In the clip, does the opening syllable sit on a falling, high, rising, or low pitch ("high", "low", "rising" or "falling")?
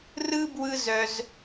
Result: high